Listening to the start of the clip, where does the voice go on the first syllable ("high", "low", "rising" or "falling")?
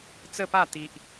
falling